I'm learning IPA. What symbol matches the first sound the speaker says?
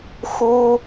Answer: x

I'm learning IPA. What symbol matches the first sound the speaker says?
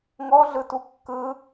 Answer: ŋ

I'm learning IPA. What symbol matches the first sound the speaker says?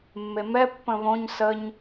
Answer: mː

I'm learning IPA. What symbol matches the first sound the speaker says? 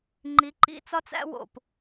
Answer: ŋ͡ǃ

